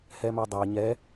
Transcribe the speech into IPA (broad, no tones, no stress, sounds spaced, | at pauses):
h ɛ m a dˤ a ɲ ɛ